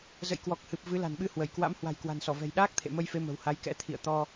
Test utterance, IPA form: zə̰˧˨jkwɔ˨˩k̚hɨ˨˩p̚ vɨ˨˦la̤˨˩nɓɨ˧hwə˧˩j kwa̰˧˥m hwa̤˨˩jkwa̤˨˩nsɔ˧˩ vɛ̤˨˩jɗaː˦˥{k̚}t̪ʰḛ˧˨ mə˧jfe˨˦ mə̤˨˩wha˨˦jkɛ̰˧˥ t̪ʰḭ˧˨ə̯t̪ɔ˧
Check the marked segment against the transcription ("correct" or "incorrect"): correct